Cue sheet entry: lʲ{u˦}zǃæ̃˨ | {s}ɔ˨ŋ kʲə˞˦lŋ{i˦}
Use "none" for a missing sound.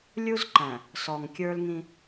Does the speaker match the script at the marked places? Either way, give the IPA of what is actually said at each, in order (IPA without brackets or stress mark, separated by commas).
u˦, s, ĩ˦